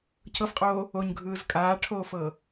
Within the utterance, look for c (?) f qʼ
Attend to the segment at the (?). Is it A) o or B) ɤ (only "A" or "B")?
B